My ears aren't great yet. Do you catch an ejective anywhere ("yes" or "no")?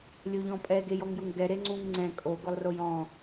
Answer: yes